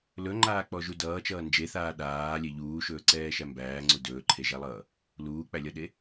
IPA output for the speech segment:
l ɵ ŋ͡ǃ aː k͡p ɔ ʒ u d ʌː t͡ʃ ʌː n d͡ʒ e θ aː ɗ aː lʲ e ʎ uː ʃ ɵː ǀ ɛː ʃ æ m b æː ŋ͡ǀ u d ɵː ǃʰ e ʒ æ lˠ ʌː | l uː k͡p æ lʲ ʌ ɗ e

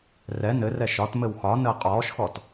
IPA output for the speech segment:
r ɛ n ɘ r ɛ ʃ ɒ t m ɘ w x ɒ n əː qʼ ɔː ʃ x ɔ t

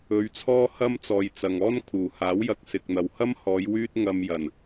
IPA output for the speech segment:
ɵ˧ ɥ t͡sʰ ɔː˥ h ɐ˥ m t͡s ɔː˨ j t͡s ɐ˨ ŋ ɔː˥ n kʰ uː˨˩ h aː˨˥ w j ɐ˧ k̚ s ɪ˨ k̚ n̪ ɐ˨ w h ɐ˥ m h ɔː˨˧ j w yː˥ t̚ ŋ ɐ˧ m j ɐ˨˩ n

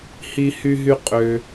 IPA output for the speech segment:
h i˧ h y˧ ɦ y˧ qʼ ø˧

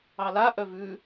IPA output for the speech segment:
ɑ l a ʔ œ v ʉ

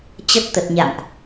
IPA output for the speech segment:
t͡ɕ ə˦˥ t̚ t̪ ə˨˩ t̚ ɲ a̰˧˨ m ʔ

